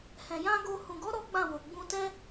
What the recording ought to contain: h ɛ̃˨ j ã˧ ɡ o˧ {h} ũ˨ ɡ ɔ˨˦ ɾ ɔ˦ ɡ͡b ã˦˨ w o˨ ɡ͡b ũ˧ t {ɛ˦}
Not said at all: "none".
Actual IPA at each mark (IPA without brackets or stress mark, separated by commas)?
h, ɛ˦